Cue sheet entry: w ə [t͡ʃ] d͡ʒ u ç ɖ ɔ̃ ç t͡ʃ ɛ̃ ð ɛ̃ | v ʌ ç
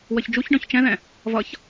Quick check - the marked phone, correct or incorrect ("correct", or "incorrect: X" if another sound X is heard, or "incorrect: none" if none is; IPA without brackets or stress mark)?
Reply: incorrect: ç